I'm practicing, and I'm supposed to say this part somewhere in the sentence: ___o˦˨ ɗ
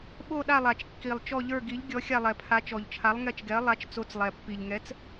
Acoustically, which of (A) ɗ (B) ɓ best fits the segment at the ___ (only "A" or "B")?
B